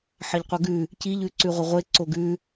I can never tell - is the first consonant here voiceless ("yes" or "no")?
yes